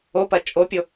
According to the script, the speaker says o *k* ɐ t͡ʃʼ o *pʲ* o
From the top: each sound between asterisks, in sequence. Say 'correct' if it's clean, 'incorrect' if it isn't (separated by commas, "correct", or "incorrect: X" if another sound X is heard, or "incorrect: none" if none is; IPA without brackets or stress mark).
incorrect: p, correct